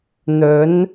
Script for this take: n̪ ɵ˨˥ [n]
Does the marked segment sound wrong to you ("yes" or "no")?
no